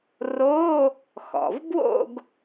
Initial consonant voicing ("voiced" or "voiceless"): voiced